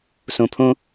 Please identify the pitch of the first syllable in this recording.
low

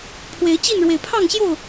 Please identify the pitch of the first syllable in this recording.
rising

